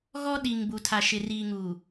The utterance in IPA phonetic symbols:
ɣ ɔ˦ ɗ i˨ ŋ b u˨ tʰ a˨ ʃ ɪ˨ r iː˨ ŋ u˨

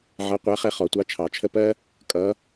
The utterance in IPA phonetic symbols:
ʕ ʌ˧˥ qʷ æ˧˥ χ ɛ˥˧ χ ɔ˧˩˧ tʷ ɑ˧˥ t͡ʃʰ ɑ˧˩˧ t͡ʃʰ ə˥˧ p ɜ˥ | kʼ ʌ˧˥

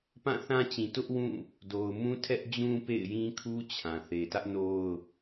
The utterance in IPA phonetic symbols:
p ã˦˨ θ ã˦ t͡ɕ ĩ˨ t ʊ˦ ʔ w ũ˦˨ | d o˨ ʊ̯ m ũ˦ tʰ ɛ˦ ʔ d͡ʑ ũ˦ p ḛ˦˨ ɪ̯ j ĩ˦ kʰ u˦ t͡ɕʰ ã˨ θ e˨ t ä˦ ʔ n o˦ ʊ̯

